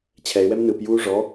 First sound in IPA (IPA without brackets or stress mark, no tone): t͡ɕʰ